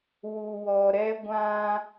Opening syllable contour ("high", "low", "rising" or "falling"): low